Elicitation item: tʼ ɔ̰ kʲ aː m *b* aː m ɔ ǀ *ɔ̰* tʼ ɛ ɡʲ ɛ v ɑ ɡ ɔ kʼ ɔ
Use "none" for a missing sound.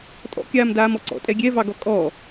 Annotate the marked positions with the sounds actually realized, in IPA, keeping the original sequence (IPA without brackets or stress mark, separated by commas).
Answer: d, ɔ̰